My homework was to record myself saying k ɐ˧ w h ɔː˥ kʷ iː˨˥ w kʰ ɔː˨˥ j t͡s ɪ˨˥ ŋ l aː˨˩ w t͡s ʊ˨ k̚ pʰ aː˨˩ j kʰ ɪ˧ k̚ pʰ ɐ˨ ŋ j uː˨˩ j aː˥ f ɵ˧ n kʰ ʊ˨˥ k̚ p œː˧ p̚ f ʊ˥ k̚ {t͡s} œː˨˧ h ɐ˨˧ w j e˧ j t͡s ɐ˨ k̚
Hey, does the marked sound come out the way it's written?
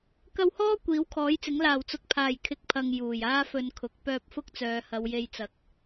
yes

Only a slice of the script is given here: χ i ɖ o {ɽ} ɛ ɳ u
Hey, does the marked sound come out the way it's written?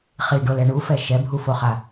no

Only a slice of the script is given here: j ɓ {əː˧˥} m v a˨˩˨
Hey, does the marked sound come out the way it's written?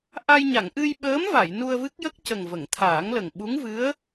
yes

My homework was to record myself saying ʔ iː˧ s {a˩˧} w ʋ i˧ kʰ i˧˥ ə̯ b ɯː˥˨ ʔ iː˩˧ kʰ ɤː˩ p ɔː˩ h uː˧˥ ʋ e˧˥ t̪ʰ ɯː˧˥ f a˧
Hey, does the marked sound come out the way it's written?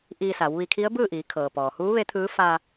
yes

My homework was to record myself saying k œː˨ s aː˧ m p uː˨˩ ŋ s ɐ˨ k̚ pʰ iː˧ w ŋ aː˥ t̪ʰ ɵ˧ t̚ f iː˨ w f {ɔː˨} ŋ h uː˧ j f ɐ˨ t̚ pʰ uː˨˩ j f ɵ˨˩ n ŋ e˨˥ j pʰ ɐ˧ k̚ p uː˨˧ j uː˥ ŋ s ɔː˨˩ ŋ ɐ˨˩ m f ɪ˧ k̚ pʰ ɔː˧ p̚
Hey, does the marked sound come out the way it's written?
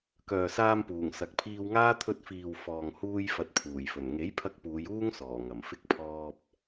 yes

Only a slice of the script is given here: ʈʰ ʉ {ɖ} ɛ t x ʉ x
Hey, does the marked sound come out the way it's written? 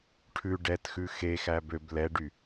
yes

